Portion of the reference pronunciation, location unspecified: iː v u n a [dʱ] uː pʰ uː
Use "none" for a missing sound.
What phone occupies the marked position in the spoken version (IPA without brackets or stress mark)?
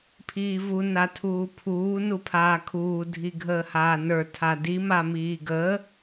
tʰ